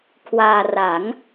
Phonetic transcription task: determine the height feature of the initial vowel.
low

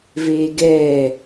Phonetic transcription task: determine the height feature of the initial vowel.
mid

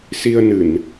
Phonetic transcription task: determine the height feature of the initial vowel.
high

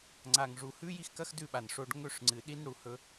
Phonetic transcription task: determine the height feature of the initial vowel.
low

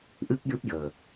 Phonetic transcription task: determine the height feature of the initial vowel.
high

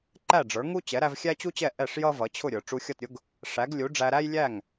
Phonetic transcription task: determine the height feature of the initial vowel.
low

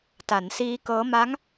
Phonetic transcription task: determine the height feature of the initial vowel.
low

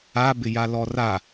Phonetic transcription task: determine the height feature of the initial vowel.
low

